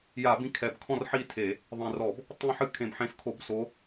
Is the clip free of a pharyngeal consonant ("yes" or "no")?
no